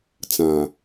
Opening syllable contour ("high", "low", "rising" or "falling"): low